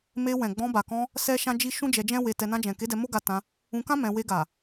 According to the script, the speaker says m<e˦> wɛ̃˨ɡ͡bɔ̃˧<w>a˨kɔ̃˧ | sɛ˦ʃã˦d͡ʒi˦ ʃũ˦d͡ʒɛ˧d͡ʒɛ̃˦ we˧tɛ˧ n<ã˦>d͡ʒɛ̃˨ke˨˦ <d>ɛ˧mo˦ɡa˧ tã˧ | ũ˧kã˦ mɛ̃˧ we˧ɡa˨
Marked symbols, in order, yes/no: no, no, no, yes

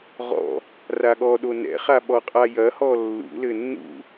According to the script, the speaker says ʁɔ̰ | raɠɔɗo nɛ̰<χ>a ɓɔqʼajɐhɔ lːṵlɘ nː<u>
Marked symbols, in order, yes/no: yes, no

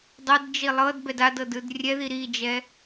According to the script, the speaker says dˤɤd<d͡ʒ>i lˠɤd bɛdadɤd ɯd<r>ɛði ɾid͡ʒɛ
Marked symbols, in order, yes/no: yes, no

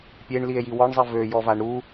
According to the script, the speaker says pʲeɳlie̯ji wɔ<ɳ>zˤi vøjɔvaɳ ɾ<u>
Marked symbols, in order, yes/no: yes, yes

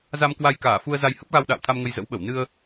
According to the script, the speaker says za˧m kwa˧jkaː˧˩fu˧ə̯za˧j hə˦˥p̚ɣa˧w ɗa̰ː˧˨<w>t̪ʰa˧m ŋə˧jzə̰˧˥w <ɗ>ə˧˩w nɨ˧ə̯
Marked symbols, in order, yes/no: yes, no

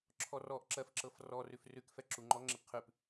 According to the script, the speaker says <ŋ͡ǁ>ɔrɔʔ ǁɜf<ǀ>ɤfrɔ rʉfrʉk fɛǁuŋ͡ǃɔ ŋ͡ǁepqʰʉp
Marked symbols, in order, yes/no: no, no

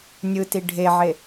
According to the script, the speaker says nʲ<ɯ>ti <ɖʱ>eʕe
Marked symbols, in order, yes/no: yes, yes

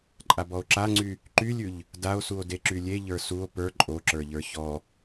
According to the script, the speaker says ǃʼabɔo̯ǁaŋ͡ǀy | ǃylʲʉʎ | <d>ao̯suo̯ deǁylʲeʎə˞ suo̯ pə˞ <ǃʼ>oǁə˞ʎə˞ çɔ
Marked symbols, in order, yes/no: yes, yes

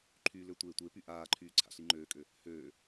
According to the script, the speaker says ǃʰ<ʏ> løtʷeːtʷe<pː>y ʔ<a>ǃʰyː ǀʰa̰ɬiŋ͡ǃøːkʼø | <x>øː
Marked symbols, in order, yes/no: no, no, no, no

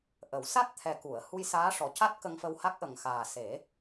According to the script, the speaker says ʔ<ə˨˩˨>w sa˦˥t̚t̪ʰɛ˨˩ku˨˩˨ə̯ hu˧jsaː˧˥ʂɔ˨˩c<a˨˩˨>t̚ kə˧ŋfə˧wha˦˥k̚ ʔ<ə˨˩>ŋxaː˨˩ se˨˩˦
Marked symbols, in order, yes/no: no, no, yes

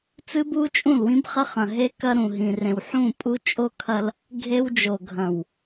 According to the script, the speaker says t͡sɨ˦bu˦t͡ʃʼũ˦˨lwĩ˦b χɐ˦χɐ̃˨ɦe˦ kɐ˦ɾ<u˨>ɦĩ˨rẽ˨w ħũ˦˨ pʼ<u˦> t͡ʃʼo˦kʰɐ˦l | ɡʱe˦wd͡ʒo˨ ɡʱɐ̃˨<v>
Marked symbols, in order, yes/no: no, yes, no

